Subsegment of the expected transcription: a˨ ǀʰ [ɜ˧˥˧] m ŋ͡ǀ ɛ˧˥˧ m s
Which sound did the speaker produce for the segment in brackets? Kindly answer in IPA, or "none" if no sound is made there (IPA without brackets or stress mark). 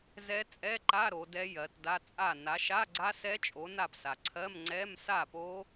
ɜ˧˥˧